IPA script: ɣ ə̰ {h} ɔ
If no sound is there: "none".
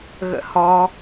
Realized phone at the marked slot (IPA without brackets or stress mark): h